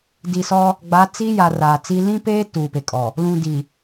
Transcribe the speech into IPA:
di˨sɔ˦ | ɡ͡ba˨˦t͡si˦ja˨ raː˨t͡si˦ lĩ˦peː˦ tuː˨pe˨kʼɔ˨ | lũ˨ di˨

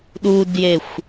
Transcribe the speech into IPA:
ɗudjexʷ

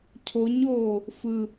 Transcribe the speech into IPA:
cʰoɲoː | fɯ

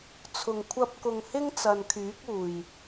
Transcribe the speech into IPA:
t͡sʰʊ˨˩ŋ kʷʰɐ˧p̚kʊ˨ŋ hɪ˥ŋt͡sɐ˨nkʰyː˨˥k̚uː˨˩j

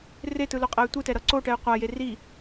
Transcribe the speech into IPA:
retɯloqʼɛy̯ tʷɯtɛɾʌ ǀoʈɛy̯ qʷaje ri

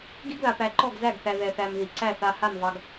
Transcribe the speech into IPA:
ɡi˦ɡða˨pæ˨ ǃɔ˦˨ɡzæ˦˨ɡθæ˨ ðɛ˨θæ˨m ði˨ ǀæ˦˨ θa˨ ha˦˨mvɑ˨ɡ

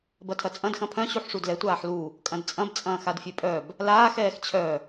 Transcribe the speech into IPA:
bɐtʰɐt͡sʼɐ̃d xɐ̃pʰœ̃ ɕuħʂudlɛ tʷaːħlu | kʼɐ̃dt͡sʼɐ̃b t͡sʼɐ̃ːxadfʲøpʼœb | laːx ɛːxt͡ɕʰœ

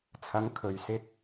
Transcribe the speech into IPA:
t͡sʰɐ˨˧ŋkʰɵ˨ɥsɪ˧k̚

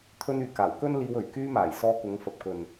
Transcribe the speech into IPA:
t̪ʰɵ˧nyː˨kaː˨˩w kɵ˥nliː˧wɵ˨˩ɥ kyː˧maː˨˩j sɔː˧kʊ˨˧ŋfɐ˨p̚kɵ˨n

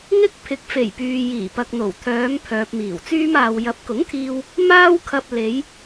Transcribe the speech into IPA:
ŋɪ˥k̚ pʰɪ˨˥k̚fe˨˩jpyː˨ jiː˨˩pɐ˨k̚n̪o˨˩w t̪ʰœː˨˧m pʰœː˨p̚miː˨˩wt͡syː˥maː˧w jɐ˨˥p̚kʊ˨˥ŋt̪ʰiː˧w | maː˥wkʰɐ˧p̚ le˨˧j

